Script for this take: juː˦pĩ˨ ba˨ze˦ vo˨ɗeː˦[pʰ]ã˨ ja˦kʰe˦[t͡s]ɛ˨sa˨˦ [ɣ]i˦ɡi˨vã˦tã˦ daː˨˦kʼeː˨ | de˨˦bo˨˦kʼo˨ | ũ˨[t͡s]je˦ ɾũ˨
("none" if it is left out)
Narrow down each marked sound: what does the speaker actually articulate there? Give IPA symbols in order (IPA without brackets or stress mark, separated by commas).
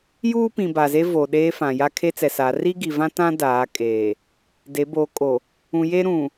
f, t͡s, r, none